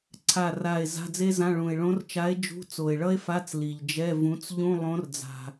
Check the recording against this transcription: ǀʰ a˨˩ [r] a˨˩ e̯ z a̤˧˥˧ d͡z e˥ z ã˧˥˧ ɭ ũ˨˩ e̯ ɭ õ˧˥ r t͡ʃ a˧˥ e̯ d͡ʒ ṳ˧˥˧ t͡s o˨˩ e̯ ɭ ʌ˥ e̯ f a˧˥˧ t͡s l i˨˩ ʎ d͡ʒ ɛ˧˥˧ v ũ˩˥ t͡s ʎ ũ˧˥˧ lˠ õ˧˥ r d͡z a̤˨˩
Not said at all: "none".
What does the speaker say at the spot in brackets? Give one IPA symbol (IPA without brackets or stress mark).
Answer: r